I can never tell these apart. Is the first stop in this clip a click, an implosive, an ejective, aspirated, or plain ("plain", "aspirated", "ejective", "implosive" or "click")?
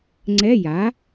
click